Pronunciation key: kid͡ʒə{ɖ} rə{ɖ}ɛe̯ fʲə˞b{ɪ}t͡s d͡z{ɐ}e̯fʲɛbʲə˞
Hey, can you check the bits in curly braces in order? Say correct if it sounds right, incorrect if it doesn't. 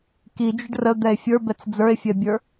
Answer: correct, incorrect: d̪, incorrect: ɛ, incorrect: ə˞

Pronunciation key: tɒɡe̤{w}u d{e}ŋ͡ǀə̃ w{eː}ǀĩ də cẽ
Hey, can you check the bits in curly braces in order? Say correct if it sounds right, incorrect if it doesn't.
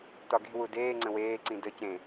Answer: correct, incorrect: eː, correct

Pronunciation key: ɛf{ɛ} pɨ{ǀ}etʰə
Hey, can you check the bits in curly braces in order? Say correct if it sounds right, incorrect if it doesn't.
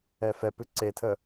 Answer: correct, correct

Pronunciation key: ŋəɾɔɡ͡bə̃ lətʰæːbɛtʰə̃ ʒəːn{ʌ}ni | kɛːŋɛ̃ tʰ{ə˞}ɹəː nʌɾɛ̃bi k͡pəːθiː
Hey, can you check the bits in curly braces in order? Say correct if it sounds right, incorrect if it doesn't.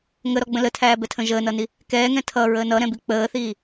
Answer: correct, incorrect: ʌ

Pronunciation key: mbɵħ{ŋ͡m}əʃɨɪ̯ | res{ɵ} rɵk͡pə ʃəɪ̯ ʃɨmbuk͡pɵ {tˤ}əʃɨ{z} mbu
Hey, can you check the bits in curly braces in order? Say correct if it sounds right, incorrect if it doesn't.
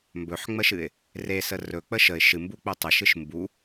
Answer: correct, incorrect: ə, correct, incorrect: ʃ

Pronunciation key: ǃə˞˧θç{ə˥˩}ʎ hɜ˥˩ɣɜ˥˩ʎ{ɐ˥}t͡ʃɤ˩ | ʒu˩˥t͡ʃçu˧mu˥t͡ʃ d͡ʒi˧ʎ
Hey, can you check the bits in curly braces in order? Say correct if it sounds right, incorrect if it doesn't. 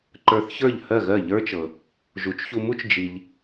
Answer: incorrect: ə˞˥˩, incorrect: ə˞˥

